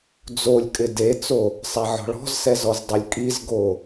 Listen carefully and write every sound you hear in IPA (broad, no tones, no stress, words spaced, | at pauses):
d͡zolʲkʼɪ det͡so | sˤaʕɔ̤ɭɔ̤zsɛ zɔzdˤulʲkʼizɡo